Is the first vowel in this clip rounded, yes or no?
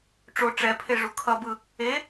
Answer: yes